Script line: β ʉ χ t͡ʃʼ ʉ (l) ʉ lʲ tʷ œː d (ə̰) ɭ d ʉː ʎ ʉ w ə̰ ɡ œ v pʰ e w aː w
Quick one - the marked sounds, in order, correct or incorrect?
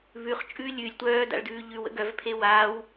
incorrect, incorrect

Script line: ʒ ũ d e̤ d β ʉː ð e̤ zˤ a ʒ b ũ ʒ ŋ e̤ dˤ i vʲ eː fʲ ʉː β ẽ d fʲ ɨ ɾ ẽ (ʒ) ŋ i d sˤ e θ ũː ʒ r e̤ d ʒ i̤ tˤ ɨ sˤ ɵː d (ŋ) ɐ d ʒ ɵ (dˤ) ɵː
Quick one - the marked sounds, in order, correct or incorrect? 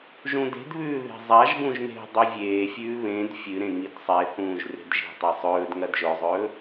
incorrect, correct, incorrect

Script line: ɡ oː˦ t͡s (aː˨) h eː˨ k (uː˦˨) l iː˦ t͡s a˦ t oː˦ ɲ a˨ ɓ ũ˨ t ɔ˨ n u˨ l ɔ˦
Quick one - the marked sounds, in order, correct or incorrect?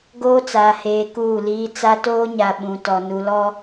correct, correct

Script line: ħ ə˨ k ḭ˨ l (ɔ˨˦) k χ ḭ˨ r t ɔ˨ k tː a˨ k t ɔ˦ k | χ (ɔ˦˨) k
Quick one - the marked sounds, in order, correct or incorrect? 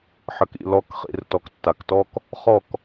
correct, correct

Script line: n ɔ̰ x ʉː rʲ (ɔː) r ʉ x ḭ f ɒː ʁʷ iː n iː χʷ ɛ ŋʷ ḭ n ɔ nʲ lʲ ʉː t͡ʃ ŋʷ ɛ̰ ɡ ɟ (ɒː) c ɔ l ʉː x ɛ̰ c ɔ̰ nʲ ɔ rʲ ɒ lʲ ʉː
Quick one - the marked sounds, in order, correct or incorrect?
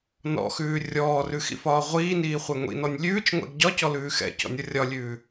correct, incorrect

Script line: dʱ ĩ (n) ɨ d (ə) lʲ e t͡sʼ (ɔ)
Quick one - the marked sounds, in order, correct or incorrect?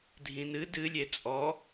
correct, incorrect, correct

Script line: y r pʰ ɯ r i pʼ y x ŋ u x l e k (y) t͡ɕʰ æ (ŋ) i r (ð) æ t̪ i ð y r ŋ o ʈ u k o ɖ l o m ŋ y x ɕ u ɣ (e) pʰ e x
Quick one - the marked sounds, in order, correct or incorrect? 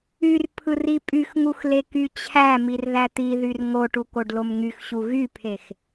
correct, incorrect, correct, incorrect

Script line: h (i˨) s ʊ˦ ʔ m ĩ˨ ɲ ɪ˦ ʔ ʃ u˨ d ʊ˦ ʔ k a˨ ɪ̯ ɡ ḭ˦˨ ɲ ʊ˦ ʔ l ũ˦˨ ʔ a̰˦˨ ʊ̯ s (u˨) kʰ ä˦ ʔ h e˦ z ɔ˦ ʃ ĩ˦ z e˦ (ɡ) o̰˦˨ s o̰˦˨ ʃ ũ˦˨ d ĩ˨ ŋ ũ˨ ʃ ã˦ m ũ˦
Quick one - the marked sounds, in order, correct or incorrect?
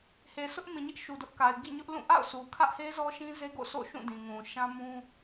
incorrect, correct, correct

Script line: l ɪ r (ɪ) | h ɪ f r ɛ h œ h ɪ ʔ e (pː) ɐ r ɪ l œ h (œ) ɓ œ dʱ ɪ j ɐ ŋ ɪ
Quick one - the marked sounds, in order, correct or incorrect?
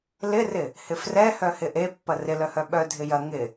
correct, correct, correct

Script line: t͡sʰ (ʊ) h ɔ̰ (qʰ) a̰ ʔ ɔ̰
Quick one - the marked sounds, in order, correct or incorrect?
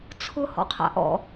correct, correct

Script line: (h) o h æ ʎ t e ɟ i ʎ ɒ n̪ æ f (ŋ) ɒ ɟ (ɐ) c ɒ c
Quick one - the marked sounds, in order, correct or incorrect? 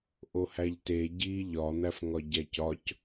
incorrect, correct, incorrect

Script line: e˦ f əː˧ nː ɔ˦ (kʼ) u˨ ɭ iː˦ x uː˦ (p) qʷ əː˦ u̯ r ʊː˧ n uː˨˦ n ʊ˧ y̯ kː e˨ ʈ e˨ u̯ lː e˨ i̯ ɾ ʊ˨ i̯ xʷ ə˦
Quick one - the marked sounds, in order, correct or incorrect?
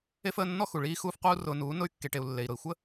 incorrect, incorrect

